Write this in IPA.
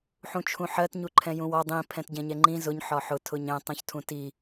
ħ ũ t͡ʃʰ ũ ħ ɜ t ɲ u ǃʰ ɛ̃ j ũ w ɒ dˤ ĩ pʰ ɛ̃ t ɟ ɛ̃ ɲ ɛ ŋ͡ǃ ĩ z ʊ ɲ ħ ɒ ħ ʊ tʰ ʊ ɲ ɛ̃ tˤ ũ ç tʰ ũ t i

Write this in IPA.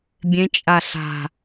bʲ ẽ t͡ʃʼ a ɬ a̤

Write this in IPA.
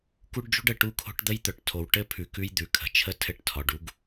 k u˦ ɖ d͡ʒ ṳ˦ ɖ ə˨ ʈ u˦ kʰ o̤˦ ʈ d̪ ə˦ j t̪ œ˨ ʈ tʰ o˨ w ʈ ɘ˦ pʰ ʉ˨ k ʉ˦ j d̪ ʉ˨ kʰ ə̤˨ t͡ʃʰ ə˦ tʰ ɘ˦˨ ʈ tʰ ɒ˨ ɖ u˦ ɡ

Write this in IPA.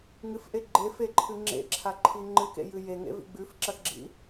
ŋ ɨ f ʔ e ɡ͡ǃ e f e ǃʰ ɨ ŋ͡ǁ ḛ ǁʰ a ǃʰ i ŋ͡ǃ ɨ k ḛ j ɨ j e ŋ ḛ v ḭ ɡ͡b ʉ f ǁ ɐ x ɡ͡ǁ ḭ

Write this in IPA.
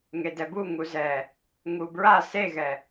ŋ e d ɛ b u ŋ u z ɛ | ŋ u b ɹ a s e ɣ ɛ

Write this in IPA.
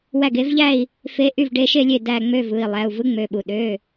w æ˥˩ ɡ e˧˥ v ʎ æ˥˧ i̯ | f e˧˥ ʔ y˥˩ v ɖ e˧˥ ʃ e˥˧ lʲ e˥˩ d æ˥˧ ŋ͡m ø˥˧ v ɯ˩˧˩ i̯ lˠ æ˩˧˩ u̯ v ɯ˧˥ ŋ͡m ø˩˧˩ ɓ u˩ ɗ ø˩˧˩

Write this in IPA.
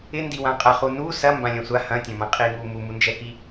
ɪ n d i w ã qʼ ɐ χ u n u s ɐ m b ã lʲ ɐ̃ sʷ a h ɐ̃ tʲ ɐ̃ m ɐ̃ qʼ i ŋ u m u m u n d͡ʒ ɛ k i

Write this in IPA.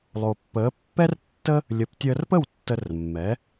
lˠ o˩ pː əː˩˥ pː ɛ˥ r tː ə˥ | lʲ ə˩˥ p tʲ əː˧ r p ə˥˩ w tː ə˧ r mː ɛ˩˥

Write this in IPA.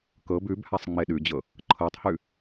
k ɤ b ʉ b h a sˤ ŋ͡m e ɗ ʉ d͡ʑ ɤ | ǃʰ ɤ tˤ h ʉ

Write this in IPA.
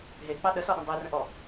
ɦ e k͡p ɑ ɗ ə s ɔ ɗ ə̃ dˤ e r ə̃ ʔ ɔ

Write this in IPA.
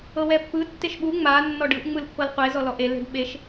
ɤ w ɛ pː ɯ tː e ʃ ɓ u ŋ͡m a nː ɔ ɖ ɯ ʔ ŋ͡m ɯ l pː ɤ l qʷ e z ɔ l ɔ ʔ e l e̤ ɖ ɓ e ʃ

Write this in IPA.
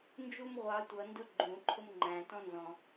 n d͡ʒ u m ʁʷ ɑ tʷ ʌ n d ʊ ɡ͡ǃ ũ ǃʰ ʊ m ŋ͡ǃ æ̃ t ɔ̃ n z ɔ̃

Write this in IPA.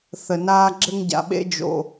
θ ə˩ n aː˧ ɡ͡ǁ ɘ˧ ŋ ɟ a̰˩ ɓ ḛ˧ d͡ʒ o̰˩

